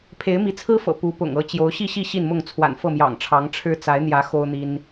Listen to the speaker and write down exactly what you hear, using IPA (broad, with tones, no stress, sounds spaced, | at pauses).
pʰ e˨˦ ɪ̯ m i˨˦ t͡sʰ ɹ̩˦ f ɤ̰˨˩ p u˨˦ p ʊ̰˨˩ ŋ ɤ˥˨ t͡ɕ j o˨˦ ʊ̯ ɕ i˥˨ ɕ i˥˨ ɕ i˥˨ n m ʊ˥˨ ŋ t͡sʰ w a̰˨˩ n f ɤ˥˨ m j ɑ̰˨˩ ŋ ʈ͡ʂʰ ɑ˨˦ ŋ ʈ͡ʂʰ ɻ̩˦ t͡s a˨˦ ɪ̯ n̪ j ä˨˦ x o˦ ʊ̯ n̪ i˦ n